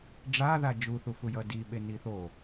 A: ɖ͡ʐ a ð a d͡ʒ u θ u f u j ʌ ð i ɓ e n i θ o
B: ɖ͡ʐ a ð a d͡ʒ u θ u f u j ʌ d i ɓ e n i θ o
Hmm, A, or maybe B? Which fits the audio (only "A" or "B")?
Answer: B